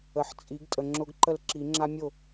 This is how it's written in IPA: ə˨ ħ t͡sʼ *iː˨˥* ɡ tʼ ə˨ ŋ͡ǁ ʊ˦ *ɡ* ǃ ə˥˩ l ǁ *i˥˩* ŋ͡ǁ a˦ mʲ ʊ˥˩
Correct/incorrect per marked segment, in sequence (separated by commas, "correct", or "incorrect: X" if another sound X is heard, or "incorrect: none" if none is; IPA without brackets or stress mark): incorrect: i˨˥, correct, incorrect: i˨˩˦